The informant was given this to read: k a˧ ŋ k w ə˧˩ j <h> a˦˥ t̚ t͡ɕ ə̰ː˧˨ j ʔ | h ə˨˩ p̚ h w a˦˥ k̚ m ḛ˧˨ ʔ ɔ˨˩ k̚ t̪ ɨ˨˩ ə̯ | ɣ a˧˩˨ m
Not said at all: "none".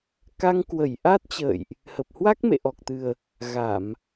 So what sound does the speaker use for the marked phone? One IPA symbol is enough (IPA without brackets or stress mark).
ʔ